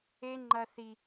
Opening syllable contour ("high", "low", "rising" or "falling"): high